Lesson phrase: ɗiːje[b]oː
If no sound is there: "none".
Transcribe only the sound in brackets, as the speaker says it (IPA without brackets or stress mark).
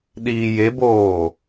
b